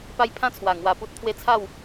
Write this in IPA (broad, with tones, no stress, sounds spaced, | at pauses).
p a˧ j pʰ ã˧ t͡sʰ w a˨˩ ŋ w a˧ p u˦ t̚ t̪ʰ w e˥˧ t͡sʰ a˥˧ w